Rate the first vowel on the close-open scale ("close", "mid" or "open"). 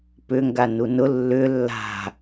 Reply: close